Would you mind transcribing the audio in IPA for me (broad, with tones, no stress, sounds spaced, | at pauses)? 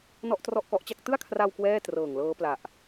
n ɔ˥˩ ʔ t r ɔ˥˩ ʔ k ɔ˦˥ ʔ t͡ɕ a˥˩ k̚ t ɯ˥˩ a̯ kʰ r a˧ w k w ɛː˥˩ t r ɤː˨˩ ŋ l ɤː˦˥ p l a˨˩ ʔ